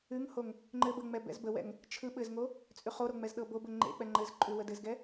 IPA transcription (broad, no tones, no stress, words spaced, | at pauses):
ʉŋhoŋ | ŋ͡ǃɘb əŋ͡mɛ bɛ̰zbəwɛ̰ŋ | t͡ʃʰɯ ɓɘzŋo | t͡sʼʉχoɾo ŋ͡mɛzɗɤbobə ŋ͡ǃḛ k͡pɛŋ͡ǃɘzǃʼʉ wədɘzɡɛ